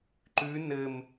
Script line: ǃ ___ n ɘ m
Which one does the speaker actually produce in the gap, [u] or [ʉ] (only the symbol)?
ʉ